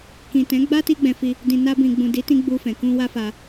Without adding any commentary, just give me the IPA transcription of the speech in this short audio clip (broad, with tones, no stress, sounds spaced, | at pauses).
k ĩ˨ t ɛ̃˨˦ ɡ͡b a˦ t i˧ ɡ͡b ɛ̃˨ f i˧ | d ĩ˨ n a˧ b ĩ˨ ɡ͡b ũ˨ d i˨˦ t ĩ˧ ɡ͡b u˧ f ɛ̃˨ k ũ˧ w a˦ f a˧